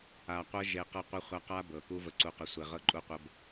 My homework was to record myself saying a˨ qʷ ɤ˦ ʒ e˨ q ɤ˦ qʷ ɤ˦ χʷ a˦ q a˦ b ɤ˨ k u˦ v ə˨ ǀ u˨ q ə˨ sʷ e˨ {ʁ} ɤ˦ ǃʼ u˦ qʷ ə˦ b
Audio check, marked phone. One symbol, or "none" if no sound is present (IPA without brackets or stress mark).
ʁ